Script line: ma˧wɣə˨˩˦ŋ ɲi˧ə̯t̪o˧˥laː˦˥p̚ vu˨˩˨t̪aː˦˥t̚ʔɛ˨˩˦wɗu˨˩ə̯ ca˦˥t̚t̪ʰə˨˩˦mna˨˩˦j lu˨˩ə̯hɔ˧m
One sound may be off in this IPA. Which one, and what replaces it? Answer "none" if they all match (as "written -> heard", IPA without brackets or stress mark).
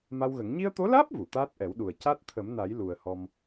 none